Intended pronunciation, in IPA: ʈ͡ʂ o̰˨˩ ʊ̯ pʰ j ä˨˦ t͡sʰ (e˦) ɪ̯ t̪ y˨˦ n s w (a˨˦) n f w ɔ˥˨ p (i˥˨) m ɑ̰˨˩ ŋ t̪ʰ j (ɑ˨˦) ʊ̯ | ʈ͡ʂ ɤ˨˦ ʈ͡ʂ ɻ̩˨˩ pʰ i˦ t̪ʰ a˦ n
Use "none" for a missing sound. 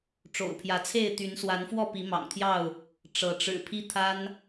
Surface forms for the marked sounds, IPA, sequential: e˥˨, a˨˦, i˨˦, ɑ˥˨

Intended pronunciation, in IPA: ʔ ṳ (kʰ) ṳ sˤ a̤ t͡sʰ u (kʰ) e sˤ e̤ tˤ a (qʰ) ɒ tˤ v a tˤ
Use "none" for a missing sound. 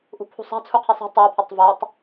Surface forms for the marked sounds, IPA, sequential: pʰ, qʰ, pʰ

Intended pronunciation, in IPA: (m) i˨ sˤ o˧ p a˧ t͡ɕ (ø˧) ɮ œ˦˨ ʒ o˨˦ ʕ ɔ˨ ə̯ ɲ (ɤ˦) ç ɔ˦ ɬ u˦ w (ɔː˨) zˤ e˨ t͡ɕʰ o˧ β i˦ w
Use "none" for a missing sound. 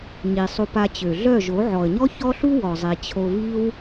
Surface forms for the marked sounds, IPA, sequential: ɲ, ø˨, ɔ˦, ɔ˨

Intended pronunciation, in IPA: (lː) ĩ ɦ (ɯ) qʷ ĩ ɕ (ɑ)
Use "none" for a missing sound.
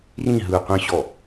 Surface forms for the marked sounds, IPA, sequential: r, ɯ, ɔ

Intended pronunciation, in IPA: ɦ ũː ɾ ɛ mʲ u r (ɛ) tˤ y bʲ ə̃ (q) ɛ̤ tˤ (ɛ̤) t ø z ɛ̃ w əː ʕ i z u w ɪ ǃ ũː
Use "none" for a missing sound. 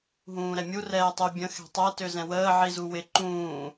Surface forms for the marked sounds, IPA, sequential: ɛː, x, ɛ

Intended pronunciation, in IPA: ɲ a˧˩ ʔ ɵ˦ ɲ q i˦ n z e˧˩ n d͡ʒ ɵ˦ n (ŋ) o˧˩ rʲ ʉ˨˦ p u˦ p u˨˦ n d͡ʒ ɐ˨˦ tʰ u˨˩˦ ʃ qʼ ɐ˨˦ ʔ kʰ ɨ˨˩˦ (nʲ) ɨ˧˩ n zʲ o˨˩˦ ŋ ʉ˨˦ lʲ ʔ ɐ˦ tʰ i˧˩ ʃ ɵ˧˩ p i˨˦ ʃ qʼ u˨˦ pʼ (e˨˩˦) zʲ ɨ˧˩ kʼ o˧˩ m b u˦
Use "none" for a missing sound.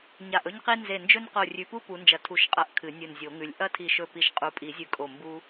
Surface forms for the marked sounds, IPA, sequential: q, nʲ, i˨˩˦

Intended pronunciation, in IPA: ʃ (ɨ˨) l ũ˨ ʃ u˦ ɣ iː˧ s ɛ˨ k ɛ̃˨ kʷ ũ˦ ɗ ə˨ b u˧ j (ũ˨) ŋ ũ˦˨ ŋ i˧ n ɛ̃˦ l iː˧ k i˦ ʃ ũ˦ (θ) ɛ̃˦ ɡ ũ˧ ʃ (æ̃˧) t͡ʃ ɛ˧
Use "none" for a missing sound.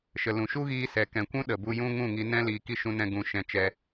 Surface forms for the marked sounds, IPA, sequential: ə˨, ũ˦, n, ɛ̃˧

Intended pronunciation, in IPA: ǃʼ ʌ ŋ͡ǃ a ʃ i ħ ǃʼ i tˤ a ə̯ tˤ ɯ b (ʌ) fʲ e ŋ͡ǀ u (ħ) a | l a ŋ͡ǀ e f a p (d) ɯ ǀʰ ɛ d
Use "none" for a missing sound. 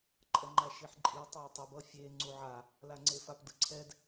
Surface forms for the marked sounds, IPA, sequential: ʌ, ʕ, d

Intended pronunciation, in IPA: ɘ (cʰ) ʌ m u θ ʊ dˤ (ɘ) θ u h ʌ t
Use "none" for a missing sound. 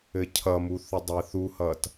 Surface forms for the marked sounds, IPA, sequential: cʰ, ɘ

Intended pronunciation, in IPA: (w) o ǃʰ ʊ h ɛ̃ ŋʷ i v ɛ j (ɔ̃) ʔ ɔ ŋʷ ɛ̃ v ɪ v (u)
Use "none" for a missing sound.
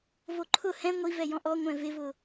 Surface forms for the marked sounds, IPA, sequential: v, ɔ̃, ʊ

